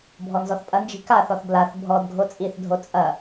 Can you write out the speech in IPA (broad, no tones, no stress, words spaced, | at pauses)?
bʱɔnzɔθpʼɐnd͡ʒi̤ kaθɔθ blaθ bʱɔd ɡʱot͡sʼiθdʱo t͡sʼɐ